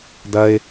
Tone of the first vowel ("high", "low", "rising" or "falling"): high